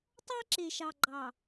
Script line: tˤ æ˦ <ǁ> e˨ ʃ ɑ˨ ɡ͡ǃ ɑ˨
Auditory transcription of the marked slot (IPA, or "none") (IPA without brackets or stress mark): ǁ